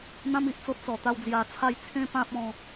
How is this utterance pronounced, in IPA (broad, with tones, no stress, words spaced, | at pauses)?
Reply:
n̪ã˦m i˨ʔt͡so˦t̚ t͡sɔ˨˩t̪a˥˧wd͡zja˧t͡sʰa˥˧j t͡sʰẽ˦pã˦p̚ɔ̃˧